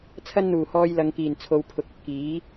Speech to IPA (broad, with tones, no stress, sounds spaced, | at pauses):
t͡sʰ ɐ˧ n n̪ uː˨˩ h ɔː˨ j l ɐ˨ ŋ k iː˨˩ n t͡sʰ o˨ w pʰ ʊ˨ k̚ ɵ˧ t̚ k iː˨˥